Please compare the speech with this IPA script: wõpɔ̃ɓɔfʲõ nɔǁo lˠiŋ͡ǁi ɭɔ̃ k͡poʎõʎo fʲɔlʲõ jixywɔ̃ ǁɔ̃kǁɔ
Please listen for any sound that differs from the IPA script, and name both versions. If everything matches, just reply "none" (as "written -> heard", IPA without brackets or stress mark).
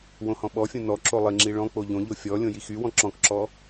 p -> h